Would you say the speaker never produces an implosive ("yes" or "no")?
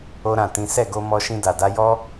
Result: yes